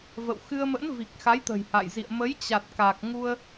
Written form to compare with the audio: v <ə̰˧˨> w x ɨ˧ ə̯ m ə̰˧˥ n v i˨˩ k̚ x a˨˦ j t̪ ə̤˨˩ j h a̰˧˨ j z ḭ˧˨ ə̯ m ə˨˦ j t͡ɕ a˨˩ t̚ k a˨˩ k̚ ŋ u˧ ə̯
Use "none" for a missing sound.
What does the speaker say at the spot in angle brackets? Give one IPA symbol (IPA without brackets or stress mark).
ə̰˧˨